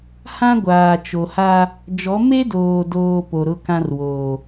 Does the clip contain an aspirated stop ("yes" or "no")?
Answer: no